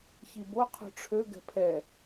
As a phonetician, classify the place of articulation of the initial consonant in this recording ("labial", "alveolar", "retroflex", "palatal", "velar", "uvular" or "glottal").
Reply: palatal